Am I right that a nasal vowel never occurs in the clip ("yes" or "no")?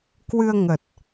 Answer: yes